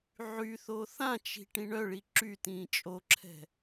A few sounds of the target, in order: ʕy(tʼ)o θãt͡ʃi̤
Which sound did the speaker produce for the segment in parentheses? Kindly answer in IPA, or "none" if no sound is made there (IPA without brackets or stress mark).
θ